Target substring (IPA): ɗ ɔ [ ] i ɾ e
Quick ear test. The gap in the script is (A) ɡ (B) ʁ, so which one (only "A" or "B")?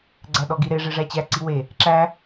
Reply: A